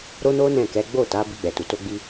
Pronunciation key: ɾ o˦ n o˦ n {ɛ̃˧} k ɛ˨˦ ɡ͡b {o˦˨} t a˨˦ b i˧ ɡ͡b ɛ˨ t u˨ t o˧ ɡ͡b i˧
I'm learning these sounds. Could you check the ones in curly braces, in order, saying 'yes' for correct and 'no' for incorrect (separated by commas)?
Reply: no, yes